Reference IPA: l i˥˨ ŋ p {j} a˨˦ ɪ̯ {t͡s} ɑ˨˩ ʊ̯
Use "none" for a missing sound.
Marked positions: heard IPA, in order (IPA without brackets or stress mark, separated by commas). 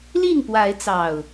w, t͡s